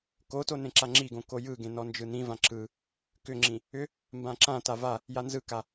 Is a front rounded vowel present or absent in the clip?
present